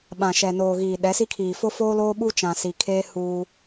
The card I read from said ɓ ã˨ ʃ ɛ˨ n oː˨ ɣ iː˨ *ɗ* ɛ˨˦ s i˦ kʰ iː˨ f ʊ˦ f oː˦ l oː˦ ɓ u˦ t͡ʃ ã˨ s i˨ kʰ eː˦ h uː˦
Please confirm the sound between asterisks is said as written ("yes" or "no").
yes